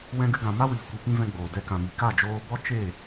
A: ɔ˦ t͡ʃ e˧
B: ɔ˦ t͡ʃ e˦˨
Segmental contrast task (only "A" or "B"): B